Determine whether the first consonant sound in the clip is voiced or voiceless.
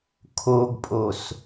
voiceless